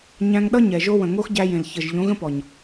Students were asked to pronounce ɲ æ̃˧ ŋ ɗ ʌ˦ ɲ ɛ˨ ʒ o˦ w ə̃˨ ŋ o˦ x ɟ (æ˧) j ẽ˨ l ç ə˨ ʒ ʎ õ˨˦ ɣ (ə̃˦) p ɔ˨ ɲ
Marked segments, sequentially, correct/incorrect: correct, correct

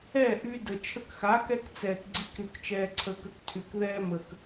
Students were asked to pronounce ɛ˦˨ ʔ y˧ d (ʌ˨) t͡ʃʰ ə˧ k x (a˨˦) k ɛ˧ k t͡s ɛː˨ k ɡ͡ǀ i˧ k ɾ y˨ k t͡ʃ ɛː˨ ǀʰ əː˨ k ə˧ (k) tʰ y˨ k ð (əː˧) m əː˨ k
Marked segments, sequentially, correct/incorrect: incorrect, correct, correct, incorrect

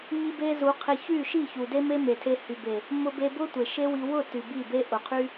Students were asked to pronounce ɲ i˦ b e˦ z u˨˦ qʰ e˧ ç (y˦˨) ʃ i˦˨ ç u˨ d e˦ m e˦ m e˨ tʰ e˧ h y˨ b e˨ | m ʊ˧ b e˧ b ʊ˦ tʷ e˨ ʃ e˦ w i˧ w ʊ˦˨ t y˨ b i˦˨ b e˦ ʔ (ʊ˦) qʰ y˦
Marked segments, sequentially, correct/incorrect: correct, incorrect

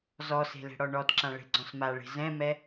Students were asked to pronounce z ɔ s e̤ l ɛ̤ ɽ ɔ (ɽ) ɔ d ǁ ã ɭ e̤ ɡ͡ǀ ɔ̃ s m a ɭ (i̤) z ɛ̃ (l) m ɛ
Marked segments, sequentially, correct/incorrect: incorrect, incorrect, incorrect

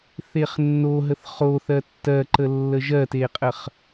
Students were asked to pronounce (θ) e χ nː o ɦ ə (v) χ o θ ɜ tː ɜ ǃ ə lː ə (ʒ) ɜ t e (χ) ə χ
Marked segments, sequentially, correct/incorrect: correct, incorrect, correct, incorrect

